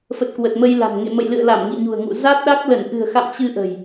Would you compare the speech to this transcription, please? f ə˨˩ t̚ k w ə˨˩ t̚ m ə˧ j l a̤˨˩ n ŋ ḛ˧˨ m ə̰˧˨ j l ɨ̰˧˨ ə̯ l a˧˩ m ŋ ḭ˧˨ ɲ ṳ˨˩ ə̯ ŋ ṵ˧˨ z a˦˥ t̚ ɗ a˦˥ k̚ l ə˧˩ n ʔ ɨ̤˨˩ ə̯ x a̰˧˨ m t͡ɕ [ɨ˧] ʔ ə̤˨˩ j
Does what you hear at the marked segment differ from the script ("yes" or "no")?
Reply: no